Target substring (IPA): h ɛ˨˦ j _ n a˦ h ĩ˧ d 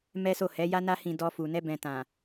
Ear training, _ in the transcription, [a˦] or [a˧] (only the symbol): a˦